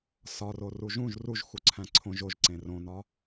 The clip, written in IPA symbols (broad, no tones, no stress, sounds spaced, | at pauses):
s ɒ r o r u ʒ ũ ʒ r u ʒ x u ǀʰ æ̃ ǀʰ õ ʒ o ʒ ǀ ẽ r õ n ɒ